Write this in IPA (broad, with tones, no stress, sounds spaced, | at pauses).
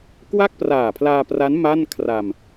k w a˥˩ k̚ p r aː˨˩ pʰ l aː˧ p r a˦˥ n m a˥˩ n kʰ r a˧ m